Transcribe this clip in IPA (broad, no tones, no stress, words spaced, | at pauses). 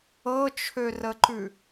ɤt͡ʃʰørəǃʉ